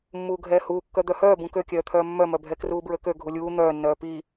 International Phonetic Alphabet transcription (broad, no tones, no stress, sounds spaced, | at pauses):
mː uː ɡʱ ɛː h uː kː œ d̪ œ h œː b ũ k ø kʲ œː t̪ʰ œː mː œ m œ bʱ ɛ k r uː b ɹ ø k ø ɡʱ u lʲ uː n̪ œː nː œː p i